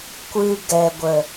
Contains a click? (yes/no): no